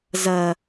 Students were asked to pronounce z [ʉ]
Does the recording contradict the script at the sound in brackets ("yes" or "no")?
yes